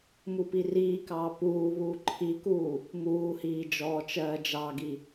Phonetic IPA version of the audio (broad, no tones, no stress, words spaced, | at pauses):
mupiriːkɑː puːβuː ǃʰikuː | muːhiː d͡ʒɔːt͡ʃɜːd͡ʒɑɡi